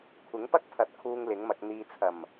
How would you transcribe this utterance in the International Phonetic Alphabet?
kʷʰ ɪ˨˥ ŋ p ɐ˥ k̚ pʰ ɐ˨˥ t̚ kʰ uː˧ ŋ l ɪ˨˥ ŋ m ɐ˧ k̚ n̪ iː˨ t͡sʰ ɐ˨˩ m

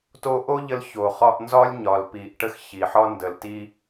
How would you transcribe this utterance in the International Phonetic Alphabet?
t o˧ ʔ o˦ ʎ ə˦ l ç o˨ χ ɒ˧ ʔ n z ɒ˦ lʲ ɲ ɒ˨ l p i˨ ʔ ʈ ə˦ x ç i˨ ħ ɒ˦ n d ə˨ l t i˦

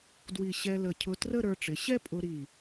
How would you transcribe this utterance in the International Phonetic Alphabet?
d w i˧˩ ɕ ɛ˧ l ə˧˩ cʰ ʊ˧ t r ə˥˧ ɾ ə˞˧ ʈ͡ʂ ɪ˩˧ ɕ ɛ˥ pʼ ʊ˧ ɾ i˧˩

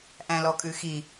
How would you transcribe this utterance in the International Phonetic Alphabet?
ʔ æ̃ l ɔ kʼ ʉ x i

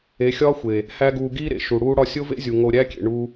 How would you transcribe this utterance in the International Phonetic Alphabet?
e˨˦ xʲ ɒː˦ xʷ e˨ | h æ˦ ɡ uː˧ ɡ iː˦ ɾ ḛ˨ ʃ u˨ ɽ uː˦ ɽ ɒ˦ sʲ o˦ v ḛ˦ zʲ u˨ ŋ o˧ ɾʲ æ˦ kʲ ḛ˨ ɳ u˦

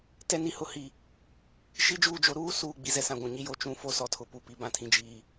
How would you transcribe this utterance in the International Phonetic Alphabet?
t ɛ˦ n i˨ h ʊ˦ h i˨ | ʃ i˦ d͡ʒ uː˦˨ d͡ʒ o˦ ɾ uː˦ s uː˨ ɡ͡b i˨ z ɛ˦ s ã˨ ɡʷ ũ˨ ɲ i˦ j o˦˨ t͡ʃ ũ˦ f o˦ s ɔ˨ tʰ ʊ˨ p u˨ p i˨ b ã˨ tʰ ĩ˨ d͡ʒ iː˨

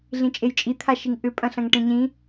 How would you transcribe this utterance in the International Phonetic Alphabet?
ɮ ĩ t͡ʃʼ e j t͡ʃʼ i t̪ʰ a ʃ i ŋ ʔ ʏ pʼ ɐ̃ ɬ ɐ̃ ŋ ʈ ẽ ɲ ĩ

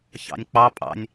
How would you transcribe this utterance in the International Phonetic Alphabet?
ç ɑ̰ nʲ k͡p ɑ pʼ ɑ̰ nʲ

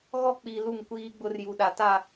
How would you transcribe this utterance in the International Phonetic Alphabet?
ɣ ɔ˦ k͡p i˨ l u˦˨ ŋ kʷ iː˦ ɡ͡b ʊ˦ r j u˨ ɗ a˨ t a˦˨

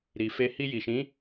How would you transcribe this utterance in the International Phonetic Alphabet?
ɾ i˨ f e˧ h i˧ j i˨ ʃ ĩ˨˦

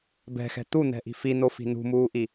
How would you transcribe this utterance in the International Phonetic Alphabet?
b ɛ̤ x ɛ̤ t̪ u n̪ ɛ̤ ʔ i̤ f i n o f i̤ n ṳ m uː ʔ i

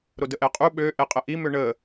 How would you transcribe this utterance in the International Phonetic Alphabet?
ɾ o d ə ʔ ɛ qʼ u ɓ ø ʔ ɛ qʼ ə ʔ i m ø ɳ ə

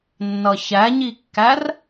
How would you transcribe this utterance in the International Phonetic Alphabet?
nː ʌ ç æ ɲ i kː æ r

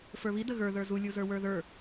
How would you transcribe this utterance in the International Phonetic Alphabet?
f ə˞ β i d ə ɣ ə˞ ð ə˞ z u lʲ u z ə˞ w ə˞ ð ə˞

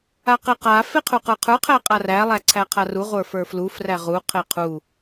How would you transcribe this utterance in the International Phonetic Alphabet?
a q e q a f e qʰ u q ə˞ qʰ ə˞ qʰ æ qʼ a r æ lˠ æ ǀʰ æ qʰ a r u ʁʷ ə˞ f ə˞ f l u f r æ ʁ u qʰ e qʰ u

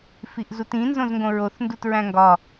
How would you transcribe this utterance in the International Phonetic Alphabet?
f i ʔ z u t ĩ n z õ z ŋ ɡ õ ɹ o θ n d u t ɹ æ̃ ŋ ɡ ɒ

